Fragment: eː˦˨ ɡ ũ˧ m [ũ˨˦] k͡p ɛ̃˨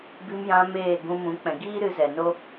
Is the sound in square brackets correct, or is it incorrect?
correct